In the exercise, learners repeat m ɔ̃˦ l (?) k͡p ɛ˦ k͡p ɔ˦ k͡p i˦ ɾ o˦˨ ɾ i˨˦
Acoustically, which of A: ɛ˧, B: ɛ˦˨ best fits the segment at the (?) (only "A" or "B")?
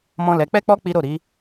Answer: A